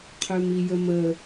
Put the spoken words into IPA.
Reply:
qʰ ø m i j ə m ə

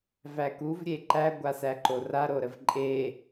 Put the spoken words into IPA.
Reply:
v æ k u v ɾʲ e ǃ æ ɡʷ a s æ ǃ o r a ɾ o ɾ ə v ǃʼ e

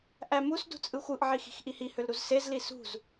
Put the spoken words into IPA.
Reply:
ʔ æ m u s d ṳ t͡sʼ ɯ xʷ ɯ ʔ ʕ i x i̤ x ʔ i h i h ø l ɾ u z s e z l i s ṳ z

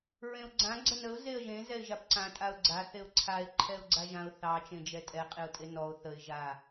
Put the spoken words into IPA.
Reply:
ɹ ẽ ʊ̯ ɡ͡ǀ ã ɡ͡ǀ ə n ə ʊ̯ z e ə̯ ʒ ẽ z ɛ ɪ̯ ʒ a p ǀ ã tʼ a ʊ̯ ɡ͡ǀ a θ e ʊ̯ ǀʰ a ɪ̯ ǃʰ ɛ ʊ̯ ɡ͡ǀ a ʒ ã ʊ̯ θ ɑ t͡ʃ ẽ d͡ʒ ɛ tʼ ɛ qʼ e ʊ̯ tʼ e n ɔ ʊ̯ θ ə ɪ̯ ʒ a

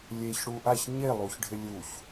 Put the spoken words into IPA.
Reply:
lʲ e ç ɽ u ʔ a ç ɲ e lˠ u ç ɖʱ ɪ lʲ u ç

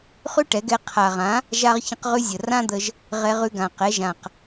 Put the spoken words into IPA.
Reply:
χ ʉ˥ ʈ ɛ˩˥ ɡ ɛ˧ qʰ a˨˩ ʁ ã˩˥ | ʒ a˥ ʁ ç ə̃˥ q ʁ ʉ˥ zʲ ə˨˩ r ã˥ d̪ ə˧ ʒ | ʁ ɛ˧ ʁ ʉ˧ ɡ ã˨˩ q ɛ˩˥ ʒ ã˨˩ q

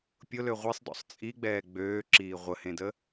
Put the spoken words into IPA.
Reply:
pʲ ʊ l ø ʁʷ i sˤ d ɔ̰ sˤ t͡sʼ i ɡ͡b ɛː ɡ͡b øː ǁ iː ʁʷ ə h ẽ d ə

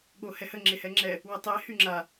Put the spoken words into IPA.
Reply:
ɠ o h ɛ h ə ŋ͡ǁ e h ɛ ŋ͡ǁ ɛ | w ə tˤ e h y ŋ͡ǁ a

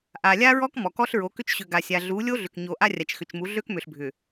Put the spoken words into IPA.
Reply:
ʔ a˨ lʲ a˦ ɹ ɔ˦ k m ɔ˨ k ɔ˦ ɬ ɹ o˨˦ k ʏ˦ t͡ʃ ɕ ʏ˨ ɡ a˨ sʲ a˨ ɮ u˨˦ lʲ o˦ ɮ ʏ˨ k ɲ o˨ ʔ a˦ rʲ a˨ t͡ʃ x ʏ˨ t͡ʃ m u˨˦ ɮ ø˦ k m ʏ˨ ɬ bʱ ʏ˨

